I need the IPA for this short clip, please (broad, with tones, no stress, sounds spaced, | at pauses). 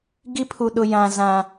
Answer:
ɡ i˦ pʰ u˨ ɗ ʊ˨ j ã˨ z ã˨